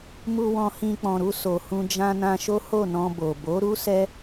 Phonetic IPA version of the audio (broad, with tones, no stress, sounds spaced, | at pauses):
m u˧ w ɔ̃˧ h ĩ˧ k͡p ɔ̃˨ ɾ u˧ s o˨ h ũ˧ d͡ʒ ã˧ n ã˧ ʃ o˦ h o˦˨ n ɔ̃˧ b o˨ b o˨˦ ɾ u˦ s ɛ˦